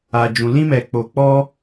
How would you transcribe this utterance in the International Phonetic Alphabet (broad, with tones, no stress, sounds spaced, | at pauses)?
a˨ d͡ʒ ũ˨ l ĩ˧ m ɛ˨ k͡p o˨ k͡p ɔ˧